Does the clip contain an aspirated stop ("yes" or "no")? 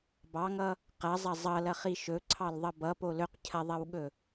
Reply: yes